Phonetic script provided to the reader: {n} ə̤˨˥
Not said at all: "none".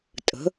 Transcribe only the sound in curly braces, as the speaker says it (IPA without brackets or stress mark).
tʼ